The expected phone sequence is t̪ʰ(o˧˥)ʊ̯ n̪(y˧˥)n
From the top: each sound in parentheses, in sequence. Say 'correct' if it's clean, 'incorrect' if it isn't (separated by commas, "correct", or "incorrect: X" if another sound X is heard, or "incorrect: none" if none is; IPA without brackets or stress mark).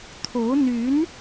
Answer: correct, correct